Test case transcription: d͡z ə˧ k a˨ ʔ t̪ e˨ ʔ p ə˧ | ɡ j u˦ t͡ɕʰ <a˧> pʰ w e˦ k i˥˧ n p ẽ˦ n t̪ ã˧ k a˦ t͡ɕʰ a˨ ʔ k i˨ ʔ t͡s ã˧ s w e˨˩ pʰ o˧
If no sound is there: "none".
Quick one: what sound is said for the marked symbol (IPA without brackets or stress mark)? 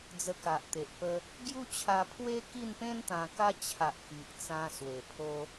a˧